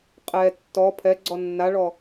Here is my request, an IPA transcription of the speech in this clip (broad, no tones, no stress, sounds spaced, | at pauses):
qʼ ɛ tː ɔ pʰ ɛ ɡ͡ǀ ɔ nː a ɭ ɔ